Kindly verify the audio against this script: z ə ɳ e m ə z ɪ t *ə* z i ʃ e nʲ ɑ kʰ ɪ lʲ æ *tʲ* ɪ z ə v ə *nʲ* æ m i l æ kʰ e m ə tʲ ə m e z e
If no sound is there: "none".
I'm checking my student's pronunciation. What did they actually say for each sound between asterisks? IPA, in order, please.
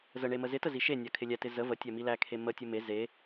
ə, t, tʲ

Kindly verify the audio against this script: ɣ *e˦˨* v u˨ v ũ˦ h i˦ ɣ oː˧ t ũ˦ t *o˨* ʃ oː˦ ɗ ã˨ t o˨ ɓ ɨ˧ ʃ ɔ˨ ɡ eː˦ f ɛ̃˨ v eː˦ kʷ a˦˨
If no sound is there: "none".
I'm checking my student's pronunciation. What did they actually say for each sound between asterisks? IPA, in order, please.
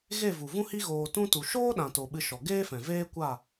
e˦˨, u˨

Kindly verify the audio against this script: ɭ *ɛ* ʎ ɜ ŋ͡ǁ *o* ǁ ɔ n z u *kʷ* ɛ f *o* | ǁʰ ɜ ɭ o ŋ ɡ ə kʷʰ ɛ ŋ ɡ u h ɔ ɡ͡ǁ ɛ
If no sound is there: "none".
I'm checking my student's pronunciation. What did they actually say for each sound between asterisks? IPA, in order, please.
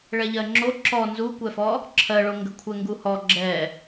ɛ, o, kʷ, ɔ

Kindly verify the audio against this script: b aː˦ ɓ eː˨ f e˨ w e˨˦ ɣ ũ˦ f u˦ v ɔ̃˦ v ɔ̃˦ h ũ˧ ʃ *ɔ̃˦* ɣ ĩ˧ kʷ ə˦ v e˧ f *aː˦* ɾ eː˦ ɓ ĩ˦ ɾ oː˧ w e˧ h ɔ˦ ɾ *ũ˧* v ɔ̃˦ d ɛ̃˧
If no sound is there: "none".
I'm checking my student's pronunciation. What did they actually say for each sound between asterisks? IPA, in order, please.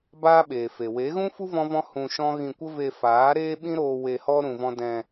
ɔ̃˦, aː˨˦, ũ˧

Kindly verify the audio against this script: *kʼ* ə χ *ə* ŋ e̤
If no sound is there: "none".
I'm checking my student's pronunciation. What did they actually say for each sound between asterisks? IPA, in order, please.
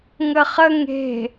ŋ, ə

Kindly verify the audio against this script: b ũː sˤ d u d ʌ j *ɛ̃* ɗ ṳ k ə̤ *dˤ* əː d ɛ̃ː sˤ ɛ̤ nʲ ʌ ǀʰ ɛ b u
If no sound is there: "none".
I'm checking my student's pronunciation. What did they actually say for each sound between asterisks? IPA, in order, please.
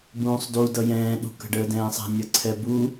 ɛ̃ː, ɖ

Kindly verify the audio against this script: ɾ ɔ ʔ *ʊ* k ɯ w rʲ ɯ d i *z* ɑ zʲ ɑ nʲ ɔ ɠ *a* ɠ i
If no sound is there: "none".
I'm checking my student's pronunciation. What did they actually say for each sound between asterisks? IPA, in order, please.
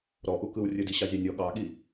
u, ɕ, ɑ

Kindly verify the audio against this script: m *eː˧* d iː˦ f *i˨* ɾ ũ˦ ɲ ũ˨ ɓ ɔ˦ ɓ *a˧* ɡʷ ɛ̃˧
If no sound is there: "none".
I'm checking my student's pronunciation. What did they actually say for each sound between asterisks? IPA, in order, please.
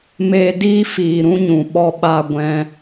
eː˧, iː˨, a˧

